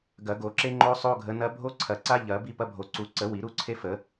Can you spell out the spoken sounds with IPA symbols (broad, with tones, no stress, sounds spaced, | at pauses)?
ɡ ɐ˨˩˦ ɡ o˨˩˦ ǁ e˦ ŋ͡ǃ o˦ sˤ o˦ ɡʱ ə˨˦ n ɐ˦ bʱ o˦ ǀʰ ɐ˨˩˦ ǀ a˦ ʎ ɐ˨˩˦ b i˦ p ɐ˦ bʱ o˨˩˦ ǀ u˨˦ ǀ ə˨˩˦ w i˨˩˦ ɾ u˦ ǀʰ e˦ f ə˨˩˦